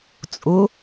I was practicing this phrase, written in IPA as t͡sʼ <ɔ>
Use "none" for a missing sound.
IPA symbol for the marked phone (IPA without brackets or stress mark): ʊ